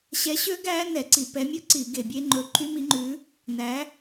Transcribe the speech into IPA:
ɕɛ˨˥ɕø˦˥ɡæ˦˥ nɛ˧˩˧ǀi˧˩˧ pɛ˨˥mʲɵ˦˥ǀi˧˩˧ ɡe˧˩˧bʲe˦˥ ŋ͡ǃɵ˨˥ ǃʰy˦˥mi˨˥ŋ͡ǃʉ˨˥ | næ˨˥

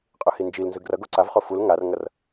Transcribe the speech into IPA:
qʼɯhind͡ʒil nzɯɡrʌ ɡoǀavχo ful ŋarŋʌr

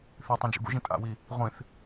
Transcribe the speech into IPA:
θitˤũd͡ʒṵ ɡṵʒĩ tʼa̰wi | ʁʷĩθ

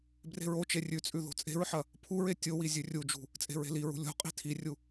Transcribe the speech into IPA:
bre̤ɹot͡ʃe rʲʉt͡sʼʉ ðo̤t͡sʼe̤ɹħɐ | pʰuɹe tʲowi zʲʉrʲud͡ʒṳ | t͡sʼe̤ɹe̤liɹṳ lʲo̤ qʼi̤tʰirʲu

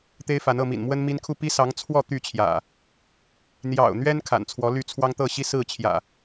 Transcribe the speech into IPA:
t̪e˦ɪ̯fa˨˦nɤ˥˨mḭ˨˩n mwə˦nmi˦nkʰu˥˨ pi˦sɑ˨˦ŋ t͡sʰwɔ˥˨ t̪y˥˨t͡ɕʰjä̰˨˩ | n̪jɑ̰˨˩ʊ̯n̪ɥɛ˦n kʰa̰˨˩nt͡sʰwɔ˨˦ly˥˨t͡sʰwɑ˦ŋ t̪ɤ˥˨ɕi˦ sɹ̩˥˨t͡ɕʰjä̰˨˩

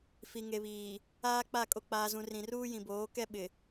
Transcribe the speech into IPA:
fi˨ŋe˨βiː˨ | aː˦k͡pa˦˨ kʼo˨k͡paː˨zũ˨ rĩ˨ruː˦jĩ˨boː˨˦ kɛ˦ ɓɪ˨

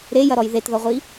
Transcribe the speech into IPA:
ɾejɐɾɔj ðetðɔʁʷi

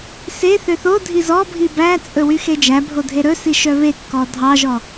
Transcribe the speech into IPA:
se θøθodʱiz ɔbʱi bæt͡sʼɵ wyxed͡ʒæbʱo dʱeɾɵsi ʃœβekːɔ dʱɑʒɔ

